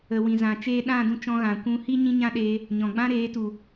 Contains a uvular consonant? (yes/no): no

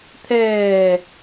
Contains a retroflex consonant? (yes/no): no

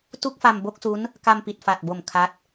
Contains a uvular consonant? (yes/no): no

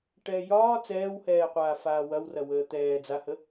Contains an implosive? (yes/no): no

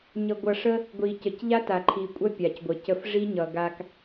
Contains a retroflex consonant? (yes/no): yes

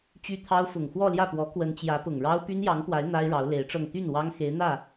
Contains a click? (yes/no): no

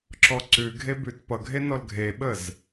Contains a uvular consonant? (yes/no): no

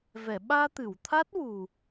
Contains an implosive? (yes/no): yes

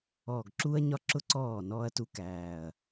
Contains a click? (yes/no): yes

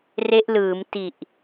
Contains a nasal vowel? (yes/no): no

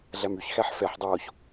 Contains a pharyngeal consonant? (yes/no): yes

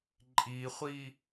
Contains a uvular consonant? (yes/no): yes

